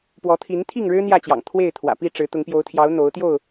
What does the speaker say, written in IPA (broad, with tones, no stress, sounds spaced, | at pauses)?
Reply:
p w ɔ˨˦ t̪ʰ i˨˦ n t̪ʰ i˥˨ ŋ ɻ ɻ̩˦ n̪ j ä˥˨ t͡ɕ j ɑ̰˨˩ ŋ t̪ʰ w e˥˨ ɪ̯ t̪ʰ w ä̰˨˩ p i˥˨ ʈ͡ʂ ɻ̩˨˦ t̪ ʊ˨˦ ŋ p j o˨˦ ʊ̯ t̪ʰ j ɑ˨˦ ʊ̯ n̪ o˨˦ ʊ̯ t̪ j o˥˨ ʊ̯